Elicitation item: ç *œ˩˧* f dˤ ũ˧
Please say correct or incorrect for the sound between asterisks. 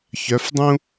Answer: correct